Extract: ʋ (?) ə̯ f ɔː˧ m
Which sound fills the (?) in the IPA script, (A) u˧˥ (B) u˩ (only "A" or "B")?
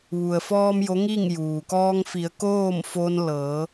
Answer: B